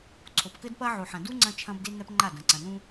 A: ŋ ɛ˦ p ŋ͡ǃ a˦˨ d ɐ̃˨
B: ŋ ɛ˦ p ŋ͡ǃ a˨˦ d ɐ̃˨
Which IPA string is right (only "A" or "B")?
A